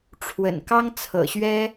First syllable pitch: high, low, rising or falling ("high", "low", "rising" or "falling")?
low